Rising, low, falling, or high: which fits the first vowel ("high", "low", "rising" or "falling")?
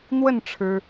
falling